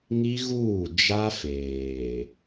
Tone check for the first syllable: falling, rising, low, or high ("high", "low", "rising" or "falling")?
high